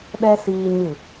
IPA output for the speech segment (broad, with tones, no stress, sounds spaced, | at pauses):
ɗ ɛ˦ s iː˧ ɲ ɨ˦˨